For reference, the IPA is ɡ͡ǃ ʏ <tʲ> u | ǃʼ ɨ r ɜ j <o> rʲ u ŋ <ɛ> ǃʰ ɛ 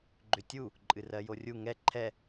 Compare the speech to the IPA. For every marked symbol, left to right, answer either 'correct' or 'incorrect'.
correct, correct, correct

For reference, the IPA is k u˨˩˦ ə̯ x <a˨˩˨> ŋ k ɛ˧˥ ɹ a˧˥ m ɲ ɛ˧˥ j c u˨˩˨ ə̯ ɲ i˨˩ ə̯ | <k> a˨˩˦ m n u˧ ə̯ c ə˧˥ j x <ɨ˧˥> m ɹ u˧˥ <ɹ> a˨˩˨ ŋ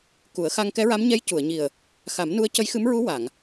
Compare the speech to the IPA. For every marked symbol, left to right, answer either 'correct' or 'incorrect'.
incorrect, incorrect, correct, incorrect

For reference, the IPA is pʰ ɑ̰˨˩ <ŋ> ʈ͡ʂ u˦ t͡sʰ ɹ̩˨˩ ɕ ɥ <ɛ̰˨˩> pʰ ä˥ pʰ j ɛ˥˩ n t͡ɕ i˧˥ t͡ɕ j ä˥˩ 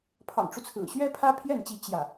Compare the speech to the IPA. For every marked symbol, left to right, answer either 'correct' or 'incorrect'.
correct, incorrect

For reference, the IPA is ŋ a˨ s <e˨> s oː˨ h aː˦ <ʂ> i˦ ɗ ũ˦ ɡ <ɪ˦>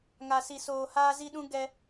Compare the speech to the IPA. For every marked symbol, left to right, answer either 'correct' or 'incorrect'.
incorrect, incorrect, incorrect

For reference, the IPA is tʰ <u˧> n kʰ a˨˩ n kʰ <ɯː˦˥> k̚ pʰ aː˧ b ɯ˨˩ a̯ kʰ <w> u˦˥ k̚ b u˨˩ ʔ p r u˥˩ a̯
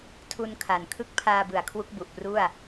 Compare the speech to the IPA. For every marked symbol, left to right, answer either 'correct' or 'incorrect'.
correct, incorrect, correct

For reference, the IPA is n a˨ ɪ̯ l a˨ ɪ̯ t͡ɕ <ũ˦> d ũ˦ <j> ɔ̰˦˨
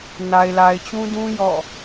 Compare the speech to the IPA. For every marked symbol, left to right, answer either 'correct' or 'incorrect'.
correct, correct

